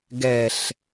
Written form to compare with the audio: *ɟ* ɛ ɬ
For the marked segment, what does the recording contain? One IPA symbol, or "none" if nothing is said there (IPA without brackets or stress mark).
ɡ